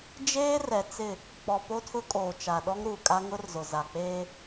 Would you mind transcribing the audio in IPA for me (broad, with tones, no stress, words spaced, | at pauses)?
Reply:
d͡ʒeː˦rɛ˨ t͡sɪ˦˨ | k͡pɔ˨po˦tʰʊ˦kʼoː˨ t͡ʃa˨ɗɔ˦ŋ ɾuː˨kʼa˦ ŋʊ˦rzʊ˨za˨k͡peː˦